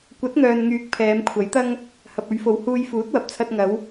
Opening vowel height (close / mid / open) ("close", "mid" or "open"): open